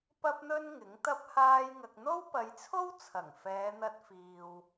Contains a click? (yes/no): no